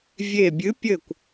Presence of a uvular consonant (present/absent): absent